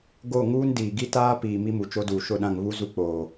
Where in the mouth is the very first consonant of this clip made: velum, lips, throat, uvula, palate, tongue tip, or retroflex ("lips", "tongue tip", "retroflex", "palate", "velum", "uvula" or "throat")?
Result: velum